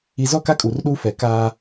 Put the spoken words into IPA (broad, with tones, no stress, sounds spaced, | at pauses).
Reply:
i˨ z ɔ˦˨ k a˦ kʼ u˨ r ɗ u˦ f ɛ˨ k aː˦